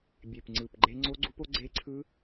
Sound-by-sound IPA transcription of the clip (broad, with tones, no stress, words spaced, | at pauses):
bʲe˨˩pŋ͡ǀɯ˨˩pɡ͡ǃe˦˥ ŋ͡ǀo˦˥ɡ͡ǀu˦˥po˦˥ ɡ͡ǀe˦˥ǀʰɯ˦˥